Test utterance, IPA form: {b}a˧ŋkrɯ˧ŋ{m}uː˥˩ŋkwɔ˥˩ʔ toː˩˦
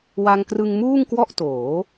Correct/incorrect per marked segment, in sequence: incorrect: w, correct

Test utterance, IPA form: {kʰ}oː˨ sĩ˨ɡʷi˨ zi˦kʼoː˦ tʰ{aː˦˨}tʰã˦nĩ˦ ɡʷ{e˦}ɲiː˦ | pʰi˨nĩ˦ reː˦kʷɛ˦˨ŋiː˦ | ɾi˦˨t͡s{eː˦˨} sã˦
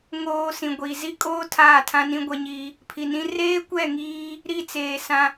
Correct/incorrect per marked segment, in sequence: incorrect: ŋ, correct, incorrect: ɛ˦, incorrect: eː˨

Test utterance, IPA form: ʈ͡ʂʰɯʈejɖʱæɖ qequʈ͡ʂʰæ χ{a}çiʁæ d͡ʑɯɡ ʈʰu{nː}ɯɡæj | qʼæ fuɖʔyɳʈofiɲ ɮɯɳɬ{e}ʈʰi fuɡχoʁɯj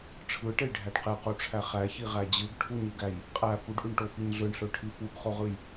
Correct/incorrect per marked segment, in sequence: incorrect: æ, incorrect: ɲ, incorrect: ø

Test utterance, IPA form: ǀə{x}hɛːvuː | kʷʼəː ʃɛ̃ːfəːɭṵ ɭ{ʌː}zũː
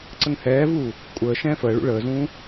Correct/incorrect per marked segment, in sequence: incorrect: ŋ, incorrect: əː

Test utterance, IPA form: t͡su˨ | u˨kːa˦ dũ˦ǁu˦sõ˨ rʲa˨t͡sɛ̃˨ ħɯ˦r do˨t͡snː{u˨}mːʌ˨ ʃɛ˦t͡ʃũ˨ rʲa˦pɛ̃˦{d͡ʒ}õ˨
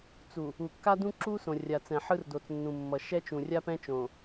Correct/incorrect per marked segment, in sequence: incorrect: ũ˨, incorrect: t͡ʃ

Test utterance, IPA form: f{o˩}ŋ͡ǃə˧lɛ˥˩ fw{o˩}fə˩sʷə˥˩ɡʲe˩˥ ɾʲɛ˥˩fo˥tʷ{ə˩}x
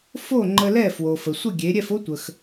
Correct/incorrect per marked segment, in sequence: incorrect: o˥˩, correct, correct

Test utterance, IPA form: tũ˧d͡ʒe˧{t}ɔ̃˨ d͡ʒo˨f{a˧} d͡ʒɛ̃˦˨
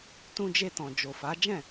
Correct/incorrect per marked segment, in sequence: correct, incorrect: a˨˦

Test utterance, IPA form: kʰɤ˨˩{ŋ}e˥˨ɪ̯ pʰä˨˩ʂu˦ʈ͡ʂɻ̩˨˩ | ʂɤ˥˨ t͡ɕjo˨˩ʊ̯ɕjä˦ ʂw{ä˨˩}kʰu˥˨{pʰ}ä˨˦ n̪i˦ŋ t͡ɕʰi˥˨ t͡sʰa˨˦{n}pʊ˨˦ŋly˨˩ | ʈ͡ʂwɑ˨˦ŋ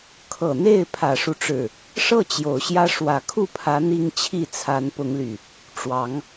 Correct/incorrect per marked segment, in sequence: incorrect: n̪, correct, correct, correct

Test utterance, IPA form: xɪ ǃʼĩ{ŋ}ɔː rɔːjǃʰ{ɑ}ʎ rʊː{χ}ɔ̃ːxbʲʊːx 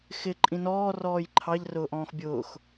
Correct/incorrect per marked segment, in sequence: incorrect: n, correct, incorrect: ʔ

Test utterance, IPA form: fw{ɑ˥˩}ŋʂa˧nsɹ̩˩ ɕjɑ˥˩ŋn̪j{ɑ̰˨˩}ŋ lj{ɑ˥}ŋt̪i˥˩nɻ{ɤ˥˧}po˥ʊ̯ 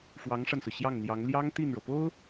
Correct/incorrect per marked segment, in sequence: incorrect: ɑ˧˥, incorrect: ɑ˧˥, correct, incorrect: ɤ˩

